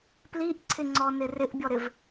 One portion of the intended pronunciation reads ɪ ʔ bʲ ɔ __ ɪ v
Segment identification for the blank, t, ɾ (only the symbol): ɾ